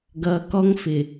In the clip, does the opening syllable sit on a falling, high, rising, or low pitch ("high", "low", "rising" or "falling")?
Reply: low